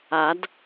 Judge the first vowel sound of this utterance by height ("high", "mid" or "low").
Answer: low